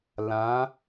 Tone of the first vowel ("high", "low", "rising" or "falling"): rising